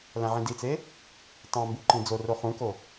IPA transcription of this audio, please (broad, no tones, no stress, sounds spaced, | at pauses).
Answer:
l æ̃ ʕ ĩ d i t͡s e | tˤ ɑ̃ m b u ǃ ĩ d͡z o r o χ ũ k o